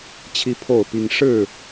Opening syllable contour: high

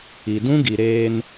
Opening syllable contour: low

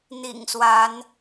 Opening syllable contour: low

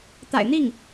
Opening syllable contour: low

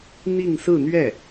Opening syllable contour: falling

